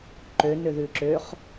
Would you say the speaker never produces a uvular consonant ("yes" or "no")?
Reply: no